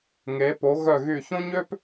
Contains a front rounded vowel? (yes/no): yes